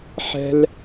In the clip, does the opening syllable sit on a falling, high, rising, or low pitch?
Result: high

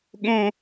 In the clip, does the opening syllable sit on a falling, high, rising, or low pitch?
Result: high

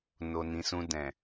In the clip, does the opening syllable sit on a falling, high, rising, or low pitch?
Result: low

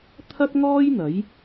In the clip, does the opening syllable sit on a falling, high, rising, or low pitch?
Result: high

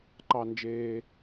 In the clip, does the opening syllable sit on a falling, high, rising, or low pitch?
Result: low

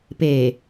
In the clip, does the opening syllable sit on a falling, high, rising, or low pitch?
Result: low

